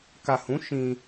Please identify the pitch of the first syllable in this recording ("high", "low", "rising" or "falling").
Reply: low